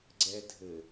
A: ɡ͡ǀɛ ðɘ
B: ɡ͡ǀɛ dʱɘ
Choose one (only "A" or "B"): B